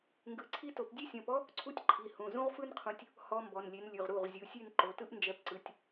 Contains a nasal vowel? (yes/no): yes